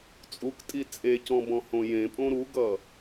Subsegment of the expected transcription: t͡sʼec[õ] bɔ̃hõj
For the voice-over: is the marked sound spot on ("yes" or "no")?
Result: no